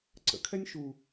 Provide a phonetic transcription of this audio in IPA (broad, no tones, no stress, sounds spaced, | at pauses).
ǀ ə̰ kʰ ɛ nʲ ʃ u